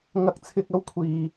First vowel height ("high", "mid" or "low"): low